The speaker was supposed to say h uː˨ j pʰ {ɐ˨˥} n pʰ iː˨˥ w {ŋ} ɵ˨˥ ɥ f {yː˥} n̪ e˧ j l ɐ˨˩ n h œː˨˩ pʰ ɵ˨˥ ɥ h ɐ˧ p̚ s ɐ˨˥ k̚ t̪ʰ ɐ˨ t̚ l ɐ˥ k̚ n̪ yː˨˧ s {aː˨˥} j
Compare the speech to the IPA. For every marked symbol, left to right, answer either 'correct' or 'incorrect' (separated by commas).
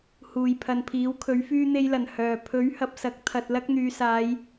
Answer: incorrect, incorrect, incorrect, incorrect